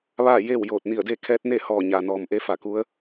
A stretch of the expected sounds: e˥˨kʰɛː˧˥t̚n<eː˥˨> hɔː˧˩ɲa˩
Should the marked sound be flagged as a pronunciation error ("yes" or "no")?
yes